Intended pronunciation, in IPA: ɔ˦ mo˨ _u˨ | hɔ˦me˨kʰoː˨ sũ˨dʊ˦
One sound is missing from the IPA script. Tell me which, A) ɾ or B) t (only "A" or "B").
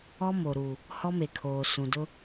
A